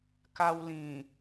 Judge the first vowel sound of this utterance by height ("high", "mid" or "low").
low